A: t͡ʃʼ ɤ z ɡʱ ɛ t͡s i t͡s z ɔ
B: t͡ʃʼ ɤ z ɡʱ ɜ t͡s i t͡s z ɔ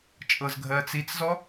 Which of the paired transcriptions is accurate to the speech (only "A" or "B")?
B